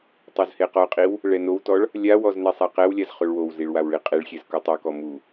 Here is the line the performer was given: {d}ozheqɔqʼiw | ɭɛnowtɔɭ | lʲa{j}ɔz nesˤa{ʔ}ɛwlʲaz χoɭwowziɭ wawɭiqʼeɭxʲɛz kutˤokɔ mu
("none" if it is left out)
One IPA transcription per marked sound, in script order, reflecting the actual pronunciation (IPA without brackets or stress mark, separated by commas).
tˤ, w, q